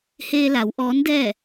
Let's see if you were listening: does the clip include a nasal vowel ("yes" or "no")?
no